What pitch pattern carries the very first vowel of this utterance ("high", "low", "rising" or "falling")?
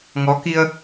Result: rising